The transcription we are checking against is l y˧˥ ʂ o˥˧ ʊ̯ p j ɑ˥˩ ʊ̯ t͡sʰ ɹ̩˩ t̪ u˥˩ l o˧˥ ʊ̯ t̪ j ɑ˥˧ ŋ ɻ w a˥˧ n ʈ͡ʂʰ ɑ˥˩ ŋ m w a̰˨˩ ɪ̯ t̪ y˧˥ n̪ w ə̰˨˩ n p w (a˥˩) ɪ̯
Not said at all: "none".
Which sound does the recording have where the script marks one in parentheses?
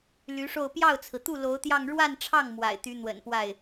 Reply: a˥˩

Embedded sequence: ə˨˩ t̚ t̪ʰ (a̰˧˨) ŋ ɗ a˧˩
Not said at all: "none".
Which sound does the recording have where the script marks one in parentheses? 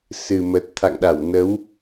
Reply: a̰˧˨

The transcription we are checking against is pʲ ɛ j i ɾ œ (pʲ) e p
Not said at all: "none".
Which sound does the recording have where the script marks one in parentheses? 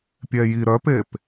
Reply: p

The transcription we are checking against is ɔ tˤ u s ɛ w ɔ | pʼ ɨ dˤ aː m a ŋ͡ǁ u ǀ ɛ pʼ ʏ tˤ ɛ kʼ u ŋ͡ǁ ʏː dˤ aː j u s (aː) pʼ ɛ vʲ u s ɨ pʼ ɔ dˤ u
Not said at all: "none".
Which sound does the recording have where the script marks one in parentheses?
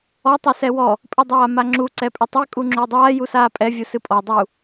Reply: aː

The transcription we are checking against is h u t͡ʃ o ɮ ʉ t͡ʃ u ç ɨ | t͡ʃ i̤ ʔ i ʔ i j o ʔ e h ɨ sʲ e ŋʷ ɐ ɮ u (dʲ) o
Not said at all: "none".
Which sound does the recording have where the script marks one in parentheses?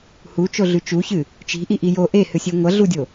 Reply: dʲ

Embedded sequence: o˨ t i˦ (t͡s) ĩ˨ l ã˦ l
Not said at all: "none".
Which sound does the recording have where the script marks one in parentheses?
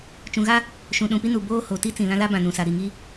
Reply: t͡s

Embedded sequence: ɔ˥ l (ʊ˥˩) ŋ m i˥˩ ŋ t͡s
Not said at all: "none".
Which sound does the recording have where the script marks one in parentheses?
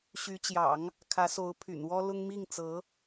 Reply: ʊ˥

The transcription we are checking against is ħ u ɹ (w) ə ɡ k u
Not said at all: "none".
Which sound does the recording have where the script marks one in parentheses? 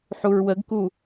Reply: w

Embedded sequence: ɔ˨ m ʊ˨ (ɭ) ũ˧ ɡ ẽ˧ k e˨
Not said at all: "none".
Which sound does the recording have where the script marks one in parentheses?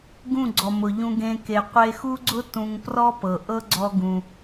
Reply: ʎ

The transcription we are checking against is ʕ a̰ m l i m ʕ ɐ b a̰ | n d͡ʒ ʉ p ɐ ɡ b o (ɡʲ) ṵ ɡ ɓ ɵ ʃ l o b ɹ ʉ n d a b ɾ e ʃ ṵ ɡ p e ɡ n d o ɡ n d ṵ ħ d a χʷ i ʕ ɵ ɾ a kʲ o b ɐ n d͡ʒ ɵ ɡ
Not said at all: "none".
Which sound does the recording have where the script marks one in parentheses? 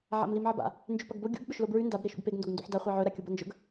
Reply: ɡʲ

